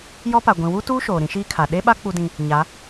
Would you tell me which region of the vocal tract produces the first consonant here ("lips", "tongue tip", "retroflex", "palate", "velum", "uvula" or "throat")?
palate